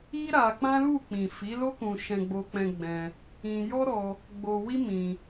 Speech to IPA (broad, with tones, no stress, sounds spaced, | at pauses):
i˦ ɾ a˧ k͡p ã˦ l u˦˨ k͡p ĩ˨ f i˨˦ l o˦ k ũ˧ ʃ ɛ̃˧ ɡ͡b o˧ k͡p ɛ̃˧ ɡ͡b ɛ̃˧ | ĩ˧ j ɔ˦ ɾ ɔ˧ | ɡ͡b o˧ w i˦ m ĩ˧